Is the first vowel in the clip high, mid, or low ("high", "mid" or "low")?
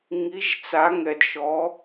high